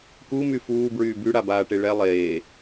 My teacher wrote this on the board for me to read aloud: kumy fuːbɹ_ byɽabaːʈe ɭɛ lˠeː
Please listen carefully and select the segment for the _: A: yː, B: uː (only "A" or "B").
A